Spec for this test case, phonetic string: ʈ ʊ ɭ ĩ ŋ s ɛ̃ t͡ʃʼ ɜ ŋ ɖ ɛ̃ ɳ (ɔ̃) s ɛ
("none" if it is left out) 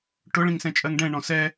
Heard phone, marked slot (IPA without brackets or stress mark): ɔ̃